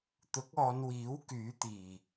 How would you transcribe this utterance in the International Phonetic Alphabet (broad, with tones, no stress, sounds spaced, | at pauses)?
t̪ ʊ˨˥ k̚ ɔː˨˧ n w iː˨˥ w k yː˨˥ t̪ iː˨˩